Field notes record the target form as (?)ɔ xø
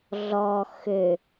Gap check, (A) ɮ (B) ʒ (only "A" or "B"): A